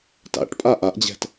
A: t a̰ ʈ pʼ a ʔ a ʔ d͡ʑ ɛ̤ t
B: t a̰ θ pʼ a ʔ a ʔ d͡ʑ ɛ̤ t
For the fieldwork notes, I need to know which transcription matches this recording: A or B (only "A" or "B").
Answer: A